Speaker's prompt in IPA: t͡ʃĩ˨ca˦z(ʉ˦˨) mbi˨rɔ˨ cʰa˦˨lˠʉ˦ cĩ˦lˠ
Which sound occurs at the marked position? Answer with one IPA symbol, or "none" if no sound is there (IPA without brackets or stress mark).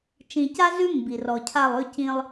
ʉ˦